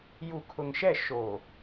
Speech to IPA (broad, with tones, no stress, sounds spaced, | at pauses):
j u˨ kʰ ʊ˨ ŋ ʃ ɛ˦˨ ʃ o˨